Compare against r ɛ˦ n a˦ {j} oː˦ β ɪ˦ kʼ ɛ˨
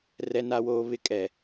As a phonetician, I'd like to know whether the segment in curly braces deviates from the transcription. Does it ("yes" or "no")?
yes